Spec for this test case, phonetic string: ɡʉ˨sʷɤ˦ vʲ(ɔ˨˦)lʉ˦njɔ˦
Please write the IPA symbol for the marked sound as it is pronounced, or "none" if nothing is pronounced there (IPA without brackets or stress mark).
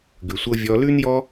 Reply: ɔ˧